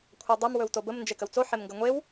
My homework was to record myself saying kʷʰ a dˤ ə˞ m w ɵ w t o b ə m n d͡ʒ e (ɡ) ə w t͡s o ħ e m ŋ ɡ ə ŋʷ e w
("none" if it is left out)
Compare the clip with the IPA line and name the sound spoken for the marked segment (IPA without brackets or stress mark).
k